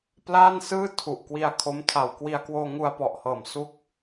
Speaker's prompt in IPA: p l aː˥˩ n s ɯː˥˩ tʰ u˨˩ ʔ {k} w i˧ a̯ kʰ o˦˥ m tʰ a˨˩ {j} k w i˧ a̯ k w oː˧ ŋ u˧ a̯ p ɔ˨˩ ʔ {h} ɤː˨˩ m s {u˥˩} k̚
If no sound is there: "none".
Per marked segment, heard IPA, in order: k, w, h, u˦˥

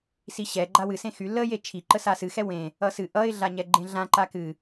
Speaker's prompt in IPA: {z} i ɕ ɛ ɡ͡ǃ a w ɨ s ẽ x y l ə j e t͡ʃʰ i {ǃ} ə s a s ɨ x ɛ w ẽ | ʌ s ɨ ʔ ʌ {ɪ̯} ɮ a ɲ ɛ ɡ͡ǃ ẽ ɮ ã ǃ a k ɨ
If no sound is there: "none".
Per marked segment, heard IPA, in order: s, ǃ, ɪ̯

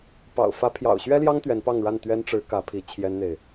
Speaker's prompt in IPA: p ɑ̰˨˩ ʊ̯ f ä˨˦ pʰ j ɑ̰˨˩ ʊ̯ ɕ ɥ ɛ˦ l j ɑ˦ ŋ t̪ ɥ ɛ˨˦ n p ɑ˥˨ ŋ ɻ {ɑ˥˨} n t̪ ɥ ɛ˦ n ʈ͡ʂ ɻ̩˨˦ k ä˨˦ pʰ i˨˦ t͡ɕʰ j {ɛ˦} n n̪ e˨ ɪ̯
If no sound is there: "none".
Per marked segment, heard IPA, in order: a˥˨, ɛ˦

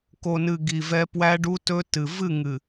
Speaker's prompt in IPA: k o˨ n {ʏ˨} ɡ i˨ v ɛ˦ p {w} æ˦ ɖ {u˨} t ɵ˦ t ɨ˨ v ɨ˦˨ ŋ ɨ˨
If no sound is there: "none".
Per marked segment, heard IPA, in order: ɨ˨, w, u˦

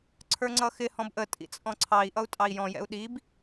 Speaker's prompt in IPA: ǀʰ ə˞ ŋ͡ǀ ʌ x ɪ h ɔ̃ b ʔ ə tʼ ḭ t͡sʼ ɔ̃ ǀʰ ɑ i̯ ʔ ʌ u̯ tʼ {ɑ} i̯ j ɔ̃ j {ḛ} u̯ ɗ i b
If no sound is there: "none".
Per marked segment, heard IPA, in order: ɑ, ɛ̰

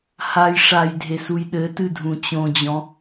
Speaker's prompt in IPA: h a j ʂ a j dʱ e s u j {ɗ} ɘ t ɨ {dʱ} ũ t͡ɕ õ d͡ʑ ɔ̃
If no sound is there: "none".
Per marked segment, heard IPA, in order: ɗ, dʱ

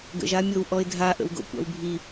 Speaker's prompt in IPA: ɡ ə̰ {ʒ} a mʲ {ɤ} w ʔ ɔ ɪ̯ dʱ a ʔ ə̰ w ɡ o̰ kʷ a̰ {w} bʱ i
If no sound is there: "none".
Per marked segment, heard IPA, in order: ʒ, ɤ, w

